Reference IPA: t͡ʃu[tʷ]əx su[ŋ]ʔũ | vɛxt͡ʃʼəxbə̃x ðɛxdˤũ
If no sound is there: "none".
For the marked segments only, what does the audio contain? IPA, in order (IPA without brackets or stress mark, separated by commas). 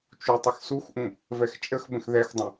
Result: tˤ, x